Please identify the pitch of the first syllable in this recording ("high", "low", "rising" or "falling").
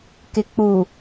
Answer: low